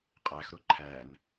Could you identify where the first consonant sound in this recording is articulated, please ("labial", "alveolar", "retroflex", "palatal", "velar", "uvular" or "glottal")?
uvular